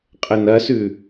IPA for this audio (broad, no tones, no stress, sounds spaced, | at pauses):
qʼ ə n ɐ s ʉ